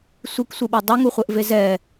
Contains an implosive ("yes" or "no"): yes